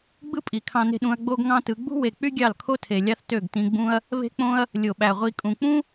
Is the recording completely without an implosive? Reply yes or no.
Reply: no